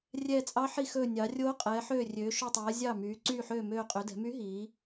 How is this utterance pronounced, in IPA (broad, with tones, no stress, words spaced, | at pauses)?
rʲɛː˧˩t͡sʼɑ˧˥ħi˧˩xɵː˧˩ nʲɑ˩˧rʲoː˧˥ qʼɛː˩˧ħøː˧˩rʲøː˩˧ ʃɵ˧˩tˤɛː˩˧ zʲɑ˧˩myː˩˧ ǀyː˧˩ħøː˧˩møː˧˩ qʼø˩˧dɛ̤˩˧my˧˥ɦiː˩˧